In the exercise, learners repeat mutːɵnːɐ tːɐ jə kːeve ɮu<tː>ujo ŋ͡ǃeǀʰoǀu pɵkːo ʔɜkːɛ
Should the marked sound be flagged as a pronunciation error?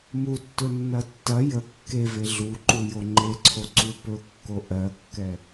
yes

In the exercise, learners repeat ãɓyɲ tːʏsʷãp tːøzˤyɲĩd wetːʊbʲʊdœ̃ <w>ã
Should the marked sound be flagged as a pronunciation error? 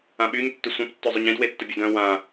no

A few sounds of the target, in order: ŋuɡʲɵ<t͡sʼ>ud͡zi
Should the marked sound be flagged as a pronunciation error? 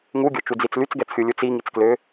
yes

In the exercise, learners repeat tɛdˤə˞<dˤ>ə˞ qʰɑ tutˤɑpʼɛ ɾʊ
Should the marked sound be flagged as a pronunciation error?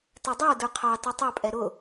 yes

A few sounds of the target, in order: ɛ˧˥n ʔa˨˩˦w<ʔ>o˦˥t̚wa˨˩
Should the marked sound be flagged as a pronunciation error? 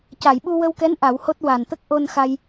yes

